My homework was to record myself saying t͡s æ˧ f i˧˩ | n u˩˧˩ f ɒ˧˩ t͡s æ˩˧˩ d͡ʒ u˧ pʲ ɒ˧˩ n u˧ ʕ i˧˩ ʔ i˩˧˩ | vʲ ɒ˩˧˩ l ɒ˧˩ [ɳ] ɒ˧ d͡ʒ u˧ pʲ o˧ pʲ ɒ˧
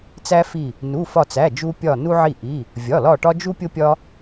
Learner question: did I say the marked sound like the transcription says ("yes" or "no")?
no